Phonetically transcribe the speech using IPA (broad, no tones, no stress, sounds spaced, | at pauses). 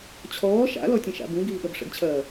t͡ɕʰ ɔː ʃ a̰ l ɔ tʲ ə̃ ʃ a̰ b ũ ɡ iː ɠ ɐ b ʂ ə̰ ɡ t͡ɕʰ ɐː